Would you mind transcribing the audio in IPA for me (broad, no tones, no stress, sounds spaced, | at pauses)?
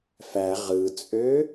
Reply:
f æ ʁ ɯ t͡sʼ ø